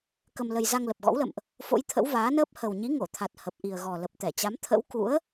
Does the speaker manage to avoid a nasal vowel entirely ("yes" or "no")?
yes